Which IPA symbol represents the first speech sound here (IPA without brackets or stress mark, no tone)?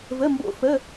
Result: v